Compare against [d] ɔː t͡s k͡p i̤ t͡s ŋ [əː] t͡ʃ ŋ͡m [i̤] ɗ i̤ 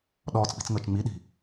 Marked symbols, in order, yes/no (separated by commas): no, yes, no